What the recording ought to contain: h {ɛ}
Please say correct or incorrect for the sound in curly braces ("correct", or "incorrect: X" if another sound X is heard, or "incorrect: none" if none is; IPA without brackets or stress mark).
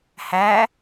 incorrect: æ